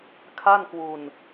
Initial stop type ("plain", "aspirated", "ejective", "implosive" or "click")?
aspirated